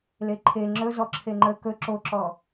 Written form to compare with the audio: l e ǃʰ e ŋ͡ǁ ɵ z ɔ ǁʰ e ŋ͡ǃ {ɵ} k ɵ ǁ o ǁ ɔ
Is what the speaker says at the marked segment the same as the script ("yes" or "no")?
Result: no